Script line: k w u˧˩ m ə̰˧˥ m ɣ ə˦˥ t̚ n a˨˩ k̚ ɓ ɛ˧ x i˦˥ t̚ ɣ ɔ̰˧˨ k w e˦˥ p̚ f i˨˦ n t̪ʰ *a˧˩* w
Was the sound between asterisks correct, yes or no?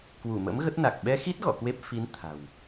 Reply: no